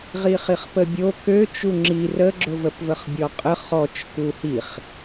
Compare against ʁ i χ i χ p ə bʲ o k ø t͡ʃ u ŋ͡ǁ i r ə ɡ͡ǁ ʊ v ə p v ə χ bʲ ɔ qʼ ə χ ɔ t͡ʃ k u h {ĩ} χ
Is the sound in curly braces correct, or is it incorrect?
incorrect